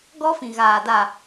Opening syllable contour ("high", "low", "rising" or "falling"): high